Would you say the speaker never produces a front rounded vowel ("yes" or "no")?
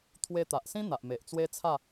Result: yes